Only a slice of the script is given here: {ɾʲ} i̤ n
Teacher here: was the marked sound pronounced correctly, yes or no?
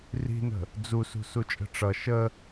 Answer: no